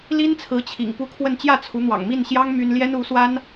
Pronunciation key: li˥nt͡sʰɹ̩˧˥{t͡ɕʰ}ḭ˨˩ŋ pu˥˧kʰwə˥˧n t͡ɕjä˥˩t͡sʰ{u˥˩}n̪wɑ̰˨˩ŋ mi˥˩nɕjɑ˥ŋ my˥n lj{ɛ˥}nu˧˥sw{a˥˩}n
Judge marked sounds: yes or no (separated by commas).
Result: yes, no, yes, no